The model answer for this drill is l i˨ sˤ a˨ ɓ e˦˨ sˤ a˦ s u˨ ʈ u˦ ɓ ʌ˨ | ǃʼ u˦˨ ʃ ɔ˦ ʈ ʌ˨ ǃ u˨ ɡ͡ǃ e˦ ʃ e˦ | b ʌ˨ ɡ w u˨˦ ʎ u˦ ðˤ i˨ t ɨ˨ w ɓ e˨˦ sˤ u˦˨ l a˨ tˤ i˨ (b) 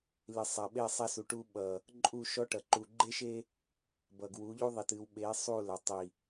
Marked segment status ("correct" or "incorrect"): incorrect